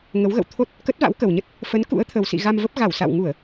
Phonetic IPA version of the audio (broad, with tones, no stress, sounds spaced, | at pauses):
ŋ ə˨˦ w ɣ ə̰˧˨ w t̪ʰ o˦˥ t̚ | k ə˦˥ t̚ v a̰˧˥ w k ə˨˩ w ɲ ə˦˥ t̚ | f ə˨˦ n k ṵ˧˥ ə̯ t̪ʰ ə˨˩ w s ḭ˧˨ ɣ a˧ m v ə˦˥ p̚ ɣ a˧˩ w s a̰˧˨ w ŋ u˧˩˨ ə̯